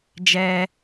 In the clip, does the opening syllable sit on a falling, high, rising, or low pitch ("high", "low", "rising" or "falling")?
high